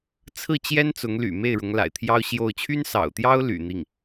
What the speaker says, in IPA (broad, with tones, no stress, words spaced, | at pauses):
t͡sʰɹ̩˥˩t͡ɕjɛ˥n t͡sʊ˧˥ŋ ly̰˨˩me˥˩ɪ̯ ɻʊ˧˥ŋla̰˨˩ɪ̯t̪ʰjɑ˥ʊ̯ ɕjo˥˩ʊ̯ t͡ɕʰy˥nsɑ̰˨˩ʊ̯t̪jɑ˥ʊ̯ ly̰˨˩n̪i˥˩ŋ